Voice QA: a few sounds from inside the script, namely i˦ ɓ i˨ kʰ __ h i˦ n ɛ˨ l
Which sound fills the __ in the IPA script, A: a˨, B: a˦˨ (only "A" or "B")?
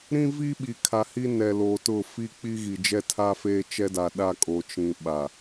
A